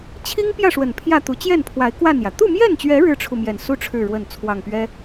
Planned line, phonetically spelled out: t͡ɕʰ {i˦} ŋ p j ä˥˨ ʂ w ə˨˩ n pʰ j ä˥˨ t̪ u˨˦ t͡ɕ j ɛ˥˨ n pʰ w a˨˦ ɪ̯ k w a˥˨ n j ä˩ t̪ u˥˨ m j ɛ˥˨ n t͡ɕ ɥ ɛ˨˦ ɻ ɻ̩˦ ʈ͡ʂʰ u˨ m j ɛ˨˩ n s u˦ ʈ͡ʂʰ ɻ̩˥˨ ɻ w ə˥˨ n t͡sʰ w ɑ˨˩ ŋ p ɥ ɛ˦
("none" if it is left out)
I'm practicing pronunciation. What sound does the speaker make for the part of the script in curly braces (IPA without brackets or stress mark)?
i˦